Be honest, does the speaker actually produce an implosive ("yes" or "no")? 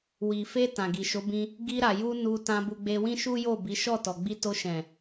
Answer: no